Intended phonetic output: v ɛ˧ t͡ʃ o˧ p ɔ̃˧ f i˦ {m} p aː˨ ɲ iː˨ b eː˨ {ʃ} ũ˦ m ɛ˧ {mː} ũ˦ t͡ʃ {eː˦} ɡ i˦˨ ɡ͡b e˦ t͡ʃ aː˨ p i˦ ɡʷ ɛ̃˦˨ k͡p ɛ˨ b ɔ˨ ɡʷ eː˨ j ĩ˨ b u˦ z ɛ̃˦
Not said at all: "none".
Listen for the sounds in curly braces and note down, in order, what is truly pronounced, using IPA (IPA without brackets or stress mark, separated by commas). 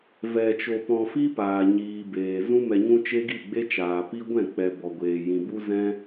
none, z, ɲ, e˦